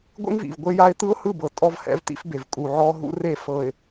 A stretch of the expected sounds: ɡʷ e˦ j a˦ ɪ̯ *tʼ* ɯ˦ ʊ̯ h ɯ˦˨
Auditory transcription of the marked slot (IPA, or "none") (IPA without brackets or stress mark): t̪